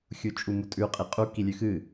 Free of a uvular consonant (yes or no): no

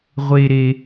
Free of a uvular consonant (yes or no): no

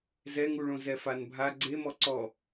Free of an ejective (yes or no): yes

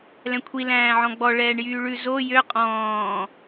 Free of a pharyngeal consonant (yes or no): no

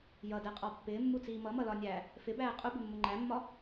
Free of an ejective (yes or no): no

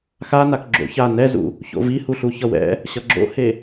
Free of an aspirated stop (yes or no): yes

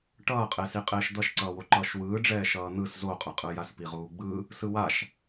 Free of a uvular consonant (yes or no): no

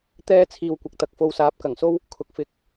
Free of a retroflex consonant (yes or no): yes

